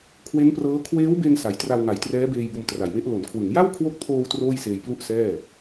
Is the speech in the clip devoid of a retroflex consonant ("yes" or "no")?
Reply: yes